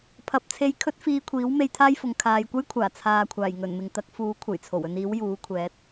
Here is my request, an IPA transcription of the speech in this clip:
pʰ ɐ˨˥ p̚ t͡sʰ e˧ j kʰ ɵ˥ t̚ f iː˧ kʷʰ iː˨˥ w m e˧ j t̪ʰ aː˥ j f ʊ˨ ŋ kʰ aː˨ j kʷ ɐ˥ j kʷʰ aː˨˩ t͡sʰ aː˨ kʷʰ aː˨˩ j ŋ ɵ˨˩ n m ɪ˨ ŋ t̪ ɐ˨˥ k̚ f uː˨˥ kʷʰ ɐ˨˩ j t͡sʰ o˨˩ w ɵ˧ n iː˨˥ w j uː˨˥ kʷʰ ɛː˨˥ t̚

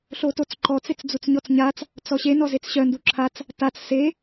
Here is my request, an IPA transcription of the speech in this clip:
ɬ o t o t͡s ǃ ɔ t͡s e t͡s d͡z u t͡s ɲ ɔ t͡s ɲ a t͡s | t͡s ɔ ɕ e n ɔ z e t͡s ɕ œ n d u ǁʰ a t͡s | t a t͡s s e

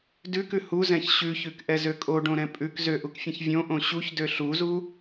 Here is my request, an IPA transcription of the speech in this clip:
d ʉ k ʉ h u z ɛ̃ ç ɕ ʉ ç ʉ k ʔ ɛ z ø kʼ o ɖ õ ɾ ɛ̃ pʼ ʉ k z ø ʔ u k fʲ ɛ̃ ç vʲ õ ʔ õ ɕ u ç d ø ɬ u z u

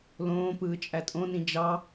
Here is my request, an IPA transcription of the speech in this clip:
l õː p ɯː t͡ʃʼ æ tʼ õ n ĩ d͡ʒ ɑ

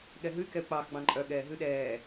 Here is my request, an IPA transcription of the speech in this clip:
ɠ ɛ ɦ ʉ y̯ k ɛ u̯ k͡p ɑ x ɡ͡b ɑ̃ ǃʼ œ ɠ ɛː ɦ ʉ ɗ ɛː

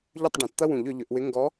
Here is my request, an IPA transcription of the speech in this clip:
ʎ ʏ˥˨ tˤ ɖ ẽ˨˩˦ t t̪ ɐ˥ w ũ˨˩˦ ʎ ʏ˨˩˦ ʎ ʏ˨˩˦ ʔ w ɪ˧˥ ŋ ɡ ɔ˧˥

